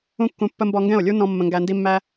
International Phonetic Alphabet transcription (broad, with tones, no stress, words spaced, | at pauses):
ũ˦kːũ˧pːə˦ mbɔ˧ŋɡɛ̃˦˨o̯lʲu˦nɔ̃˧ mːə̃˧ŋɡæ˧ndi˦mːæ˦